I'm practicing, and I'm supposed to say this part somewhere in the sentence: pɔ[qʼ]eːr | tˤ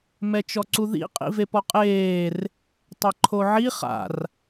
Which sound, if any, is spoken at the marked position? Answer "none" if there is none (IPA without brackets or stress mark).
qʼ